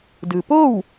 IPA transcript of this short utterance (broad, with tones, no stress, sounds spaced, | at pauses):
d ɯː˩ p oː˥˨ w